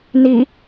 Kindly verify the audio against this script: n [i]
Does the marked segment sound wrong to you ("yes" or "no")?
no